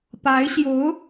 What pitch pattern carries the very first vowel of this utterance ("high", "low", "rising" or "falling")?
rising